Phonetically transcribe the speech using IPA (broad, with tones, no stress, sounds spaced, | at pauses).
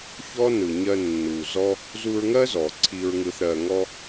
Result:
ç ɔ˦ n ɯ˨ ɲ ɜ˧ nː u˨ z ɔ˦ | z u˧ ɹ ŋ ɜ˦ z ɔ˨ ǀʰ i˧ ɹ ŋ ɯ˧ θ ɾ ɜ˨ ŋ ɔ˧